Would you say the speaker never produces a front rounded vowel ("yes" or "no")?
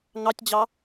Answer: yes